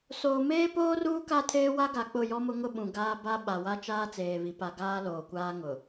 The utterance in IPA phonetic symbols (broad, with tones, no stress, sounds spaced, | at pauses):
s oː˨ m eː˦ p oː˦ r uː˦ k a˦ tʰ eː˦ w a˦ ɡ a˨ k͡p ʊ˦˨ j ɔ˦ m ʊ˦ ŋ ʊ˦ ɓ ũ˨ ɡ aː˦ b a˦ ɓ a˨ w a˦ t͡ʃ aː˦ t͡s eː˨ β i˨ p a˨ ɡ aː˦ l oː˨ kʷ aː˦ ŋ ʊ˨